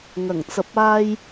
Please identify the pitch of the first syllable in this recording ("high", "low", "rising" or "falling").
low